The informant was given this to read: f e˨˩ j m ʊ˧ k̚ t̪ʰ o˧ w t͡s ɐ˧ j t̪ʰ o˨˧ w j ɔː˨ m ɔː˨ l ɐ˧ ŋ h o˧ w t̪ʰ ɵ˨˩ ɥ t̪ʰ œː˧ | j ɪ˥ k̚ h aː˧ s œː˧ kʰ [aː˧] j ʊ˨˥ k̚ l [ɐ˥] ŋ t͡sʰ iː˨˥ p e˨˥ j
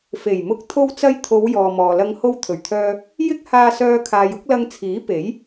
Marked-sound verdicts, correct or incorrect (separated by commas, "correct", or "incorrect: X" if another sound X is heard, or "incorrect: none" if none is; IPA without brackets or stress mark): incorrect: aː˨, incorrect: ɐ˧